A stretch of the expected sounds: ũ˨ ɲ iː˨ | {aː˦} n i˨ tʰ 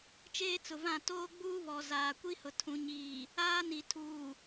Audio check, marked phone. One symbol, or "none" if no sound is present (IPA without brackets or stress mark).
aː˦